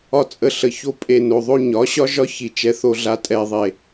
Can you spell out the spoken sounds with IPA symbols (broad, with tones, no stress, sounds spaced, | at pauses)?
ɒ˦ t͡sʼ ə˧ ɬ ə˨ ç o˧ pʼ e˨ n o˨ ðˤ o˧ ɲ ɒ˨˦ ɕ ɒ˦ ʒ ɒ˦ ç i˧ t͡ʃ ɛ˧ θ o˧ ɮ a˧ tʼ ɛ˨ ðˤ e˨